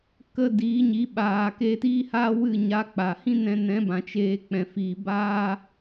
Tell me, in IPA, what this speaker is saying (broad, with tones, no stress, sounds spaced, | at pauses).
k ə˧ d iː˨˦ ɲ i˨˦ ɓ aː˨ k eː˧ t iː˦ h a˦ w ɨ˦˨ ɲ a˧ k͡p a˨ h ĩ˦ n ɛ̃˧ n ɛ̃˨˦ b ã˨ t͡ʃ eː˧ k͡p ɛ̃˨ f iː˨ b aː˦